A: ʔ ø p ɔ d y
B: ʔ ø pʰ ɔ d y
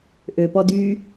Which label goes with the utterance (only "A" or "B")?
A